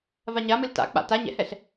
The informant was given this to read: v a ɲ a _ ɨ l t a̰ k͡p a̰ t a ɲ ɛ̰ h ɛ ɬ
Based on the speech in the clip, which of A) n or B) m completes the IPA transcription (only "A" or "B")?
B